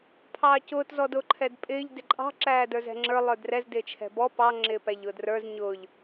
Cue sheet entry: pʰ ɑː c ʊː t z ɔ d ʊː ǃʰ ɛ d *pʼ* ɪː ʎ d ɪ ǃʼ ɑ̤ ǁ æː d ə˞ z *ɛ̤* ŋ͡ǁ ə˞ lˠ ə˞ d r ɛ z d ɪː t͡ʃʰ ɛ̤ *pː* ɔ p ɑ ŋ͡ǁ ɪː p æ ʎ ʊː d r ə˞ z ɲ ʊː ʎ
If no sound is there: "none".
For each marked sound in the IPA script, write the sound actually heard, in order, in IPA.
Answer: pʼ, ɛ̤, b

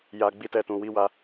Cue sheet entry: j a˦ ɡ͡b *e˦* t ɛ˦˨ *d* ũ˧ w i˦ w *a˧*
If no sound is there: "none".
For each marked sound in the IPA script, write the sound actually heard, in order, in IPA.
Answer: i˦, t, a˦

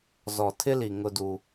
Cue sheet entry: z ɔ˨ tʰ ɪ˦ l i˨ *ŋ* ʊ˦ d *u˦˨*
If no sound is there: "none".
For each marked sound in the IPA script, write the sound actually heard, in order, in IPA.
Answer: ŋ, u˦

